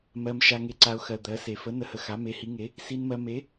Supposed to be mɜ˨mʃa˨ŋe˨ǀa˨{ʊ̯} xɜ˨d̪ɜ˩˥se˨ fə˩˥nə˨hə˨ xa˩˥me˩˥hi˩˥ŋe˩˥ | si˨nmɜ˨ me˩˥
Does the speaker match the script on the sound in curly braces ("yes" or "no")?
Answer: yes